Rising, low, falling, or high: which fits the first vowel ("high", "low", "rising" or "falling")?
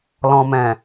low